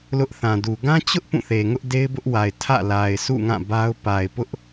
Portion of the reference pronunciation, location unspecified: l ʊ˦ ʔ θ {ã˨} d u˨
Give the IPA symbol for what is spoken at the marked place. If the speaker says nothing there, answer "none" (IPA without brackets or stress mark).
ã˨